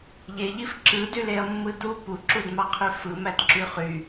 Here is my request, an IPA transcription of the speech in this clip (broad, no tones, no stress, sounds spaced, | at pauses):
ʎ e ʎ i f ǁ ɯ d y l e ɐ̯ mː ɯ d u p u ǁ u d m ɑ qʰ y f ɯ m æ d ǁ y χ y